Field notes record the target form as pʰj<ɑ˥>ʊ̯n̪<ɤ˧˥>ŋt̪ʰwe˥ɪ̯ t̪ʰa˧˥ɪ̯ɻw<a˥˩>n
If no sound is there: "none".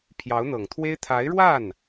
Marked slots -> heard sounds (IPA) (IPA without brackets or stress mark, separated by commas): ɑ˧˥, ɤ˨˩, a˥˩